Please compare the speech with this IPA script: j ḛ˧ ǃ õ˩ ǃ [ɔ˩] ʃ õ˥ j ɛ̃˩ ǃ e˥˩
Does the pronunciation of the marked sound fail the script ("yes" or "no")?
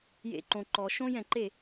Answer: no